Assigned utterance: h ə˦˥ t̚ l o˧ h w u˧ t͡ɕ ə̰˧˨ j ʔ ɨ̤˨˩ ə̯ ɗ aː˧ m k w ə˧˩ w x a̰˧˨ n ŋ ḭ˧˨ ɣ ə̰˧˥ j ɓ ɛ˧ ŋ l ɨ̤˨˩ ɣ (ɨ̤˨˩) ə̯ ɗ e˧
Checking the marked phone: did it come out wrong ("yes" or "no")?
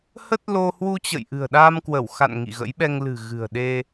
no